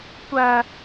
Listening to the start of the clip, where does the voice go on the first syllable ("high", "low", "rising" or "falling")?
high